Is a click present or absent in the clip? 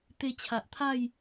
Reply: absent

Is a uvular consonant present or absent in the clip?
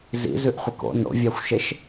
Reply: present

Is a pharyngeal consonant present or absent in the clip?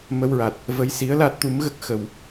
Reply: absent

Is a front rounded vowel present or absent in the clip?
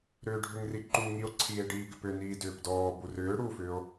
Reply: present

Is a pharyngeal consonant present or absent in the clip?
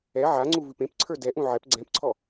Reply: present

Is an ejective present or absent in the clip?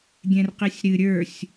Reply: absent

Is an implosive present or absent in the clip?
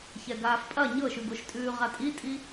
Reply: absent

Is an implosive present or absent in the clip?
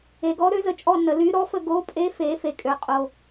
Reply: absent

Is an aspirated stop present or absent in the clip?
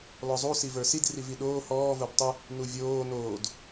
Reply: absent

